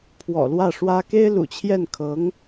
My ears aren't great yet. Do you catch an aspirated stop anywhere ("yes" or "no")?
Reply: yes